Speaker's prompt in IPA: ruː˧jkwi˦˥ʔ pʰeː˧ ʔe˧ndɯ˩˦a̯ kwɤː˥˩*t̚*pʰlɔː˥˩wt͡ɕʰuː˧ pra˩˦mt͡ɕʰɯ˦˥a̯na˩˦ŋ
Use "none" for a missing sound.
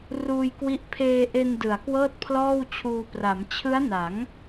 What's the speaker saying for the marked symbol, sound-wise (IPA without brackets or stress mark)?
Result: t̚